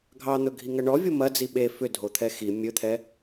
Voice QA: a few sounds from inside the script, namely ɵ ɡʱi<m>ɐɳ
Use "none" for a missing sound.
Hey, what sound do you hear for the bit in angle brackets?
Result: ŋ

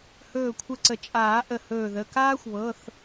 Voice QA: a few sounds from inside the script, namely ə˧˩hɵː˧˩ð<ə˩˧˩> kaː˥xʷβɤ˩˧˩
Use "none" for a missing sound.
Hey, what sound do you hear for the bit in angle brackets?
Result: ə˩˧˩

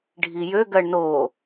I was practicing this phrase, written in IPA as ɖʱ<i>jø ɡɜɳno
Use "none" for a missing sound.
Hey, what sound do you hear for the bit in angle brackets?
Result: i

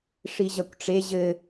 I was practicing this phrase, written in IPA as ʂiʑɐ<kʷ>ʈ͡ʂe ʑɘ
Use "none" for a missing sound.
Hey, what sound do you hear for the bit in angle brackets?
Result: kʷ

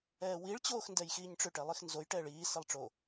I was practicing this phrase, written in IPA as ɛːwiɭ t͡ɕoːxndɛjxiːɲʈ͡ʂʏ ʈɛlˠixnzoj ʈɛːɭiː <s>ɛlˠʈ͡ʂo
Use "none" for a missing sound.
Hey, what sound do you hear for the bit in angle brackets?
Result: s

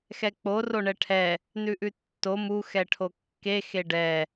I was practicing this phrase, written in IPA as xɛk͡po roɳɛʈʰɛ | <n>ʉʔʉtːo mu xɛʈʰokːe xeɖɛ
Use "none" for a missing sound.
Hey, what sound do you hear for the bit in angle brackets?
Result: n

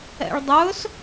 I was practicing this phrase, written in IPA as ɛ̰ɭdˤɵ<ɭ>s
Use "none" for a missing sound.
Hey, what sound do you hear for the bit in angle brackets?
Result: none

